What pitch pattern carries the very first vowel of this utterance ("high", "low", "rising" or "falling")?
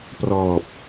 low